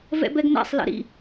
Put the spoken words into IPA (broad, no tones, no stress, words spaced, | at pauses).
vɛ̰bɛɡnæ̰sˤ lɛ̰ɾḭ